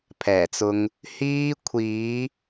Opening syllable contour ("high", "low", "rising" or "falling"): low